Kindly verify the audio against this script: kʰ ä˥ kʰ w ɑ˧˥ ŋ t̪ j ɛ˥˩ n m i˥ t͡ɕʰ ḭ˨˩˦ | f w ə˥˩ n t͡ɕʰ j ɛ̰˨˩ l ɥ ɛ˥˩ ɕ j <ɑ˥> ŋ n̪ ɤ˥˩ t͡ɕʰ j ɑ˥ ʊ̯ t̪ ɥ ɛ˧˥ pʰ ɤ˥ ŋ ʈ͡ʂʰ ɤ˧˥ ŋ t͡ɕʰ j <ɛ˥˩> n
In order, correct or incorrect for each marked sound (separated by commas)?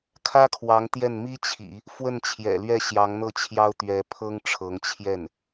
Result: incorrect, correct